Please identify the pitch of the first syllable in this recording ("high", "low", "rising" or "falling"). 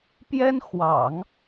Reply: high